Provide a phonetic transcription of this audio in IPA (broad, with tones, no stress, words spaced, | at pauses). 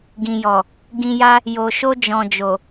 ɡĩ˨jɔ˨ | ɡĩ˧ja˦ | jo˨ʃo˧d͡ʒɔ̃˨d͡ʒo˨